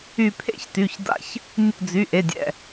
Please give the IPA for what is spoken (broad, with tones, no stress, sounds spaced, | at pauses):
y˧˩ pʰ ḛ˧˥ ç t y˩˧˩ ç d a̰˧˥ ç | nʲ ṵ˧˩ d͡z y˩˧˩ ʔ e˩˧˩ dʲ ɛ̰˧˩